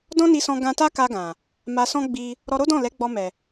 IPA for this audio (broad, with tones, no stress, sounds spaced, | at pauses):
d ɔ̃˦ n i˧ s ɔ̃˧ ɡ ã˧ t a˦ k a˧ ɡ ã˨ | m a˧ s ɔ̃˦ ɡ͡b i˧ | ɾ ɔ˧ ɾ o˦ d ɔ̃˦˨ l ɛ˨˦ ɡ͡b ɔ˧ m ɛ˨